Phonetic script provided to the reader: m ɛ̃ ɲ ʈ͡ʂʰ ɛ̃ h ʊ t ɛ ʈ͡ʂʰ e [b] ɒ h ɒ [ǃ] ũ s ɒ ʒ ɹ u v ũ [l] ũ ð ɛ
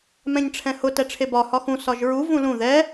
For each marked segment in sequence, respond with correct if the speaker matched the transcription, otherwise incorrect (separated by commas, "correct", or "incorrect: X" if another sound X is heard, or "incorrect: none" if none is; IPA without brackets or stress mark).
correct, incorrect: x, correct